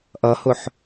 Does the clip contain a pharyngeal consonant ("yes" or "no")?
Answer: yes